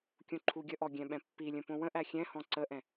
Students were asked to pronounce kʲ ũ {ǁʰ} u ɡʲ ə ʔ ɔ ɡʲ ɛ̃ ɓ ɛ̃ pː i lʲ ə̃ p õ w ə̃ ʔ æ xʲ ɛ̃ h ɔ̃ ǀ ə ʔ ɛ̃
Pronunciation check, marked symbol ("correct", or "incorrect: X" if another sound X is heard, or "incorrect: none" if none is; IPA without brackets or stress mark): incorrect: ǃʰ